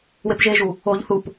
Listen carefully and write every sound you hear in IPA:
w e p ʒ e ʒ u | o ʎ θ u p

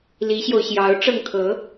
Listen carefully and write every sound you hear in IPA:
l i˧˥ ɕ j o˧ ʊ̯ ɕ j ɑ˧˥ ʊ̯ ʈ͡ʂ ɤ˥˩ ŋ kʰ ɤ˧˥

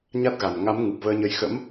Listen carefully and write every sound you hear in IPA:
ɲ a˦˥ t̚ ɣ a˨˩ n ŋ a˨˦ m ŋ ɨ˨˩ p̚ v əː˧ ɲ ə˧ j x ə̰˧˥ m

